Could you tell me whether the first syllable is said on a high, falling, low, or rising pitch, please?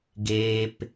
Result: low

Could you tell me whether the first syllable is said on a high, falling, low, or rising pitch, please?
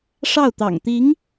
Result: falling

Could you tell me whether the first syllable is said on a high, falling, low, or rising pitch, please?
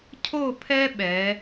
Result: falling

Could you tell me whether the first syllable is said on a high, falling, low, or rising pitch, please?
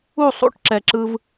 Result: falling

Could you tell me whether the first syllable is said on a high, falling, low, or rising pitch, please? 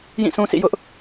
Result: falling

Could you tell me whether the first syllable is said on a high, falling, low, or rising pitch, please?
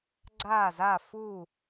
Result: falling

